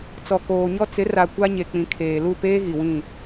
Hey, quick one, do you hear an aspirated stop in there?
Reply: yes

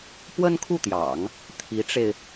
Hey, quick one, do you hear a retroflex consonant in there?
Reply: yes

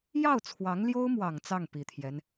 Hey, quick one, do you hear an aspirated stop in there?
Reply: yes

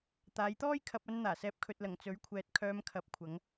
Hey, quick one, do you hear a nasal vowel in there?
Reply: no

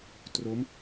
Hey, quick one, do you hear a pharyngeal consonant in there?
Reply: no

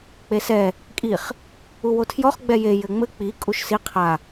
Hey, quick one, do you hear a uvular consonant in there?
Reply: yes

